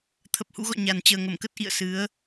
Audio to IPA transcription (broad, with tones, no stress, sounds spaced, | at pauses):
t̪ʰ ə˨˩ p̚ h ṵ˧˥ ɣ ɔ̰˧˨ ɲ a˨˩ n t͡ɕ əː˨˩ ŋ ə˧˩ m k ə˦˥ t̚ ʔ ḭ˧˨ ə̯ s ɨ˨˦ ə̯